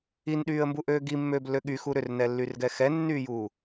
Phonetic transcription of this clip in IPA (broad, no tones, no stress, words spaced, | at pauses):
inɗyːə̯mbuʔøː ɡimːøːblːø ɠyxu ɾʏrnɛlːyrɡɛ xɛnːyːjuː